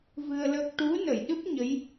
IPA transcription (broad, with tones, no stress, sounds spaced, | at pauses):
v ɨ˧ ə̯ l ə˦˥ k̚ ʈ u˧˥ n ə˨˩˨ j ɗ ɨ˦˥ p̚ ɲ ə˧˥ j